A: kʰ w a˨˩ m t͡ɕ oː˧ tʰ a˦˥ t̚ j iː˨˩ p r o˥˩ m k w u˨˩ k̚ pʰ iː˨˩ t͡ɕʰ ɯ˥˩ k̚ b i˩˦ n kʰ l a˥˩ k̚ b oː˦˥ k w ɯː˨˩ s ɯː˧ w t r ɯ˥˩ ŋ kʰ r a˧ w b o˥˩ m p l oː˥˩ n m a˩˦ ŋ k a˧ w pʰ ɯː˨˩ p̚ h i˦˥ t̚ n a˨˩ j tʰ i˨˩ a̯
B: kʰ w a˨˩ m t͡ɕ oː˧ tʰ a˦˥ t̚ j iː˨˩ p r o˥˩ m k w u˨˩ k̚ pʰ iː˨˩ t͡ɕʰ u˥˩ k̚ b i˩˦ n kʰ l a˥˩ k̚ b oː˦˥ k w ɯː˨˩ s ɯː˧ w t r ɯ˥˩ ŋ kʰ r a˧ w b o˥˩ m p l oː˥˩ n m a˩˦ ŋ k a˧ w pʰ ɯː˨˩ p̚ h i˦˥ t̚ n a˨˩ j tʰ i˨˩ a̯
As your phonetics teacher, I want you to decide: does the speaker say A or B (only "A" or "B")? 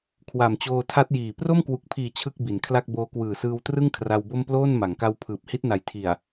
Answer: A